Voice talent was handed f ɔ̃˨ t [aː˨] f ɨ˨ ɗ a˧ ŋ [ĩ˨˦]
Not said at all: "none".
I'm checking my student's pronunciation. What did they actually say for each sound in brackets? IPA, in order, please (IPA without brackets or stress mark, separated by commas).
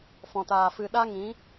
aː˨, ĩ˨˦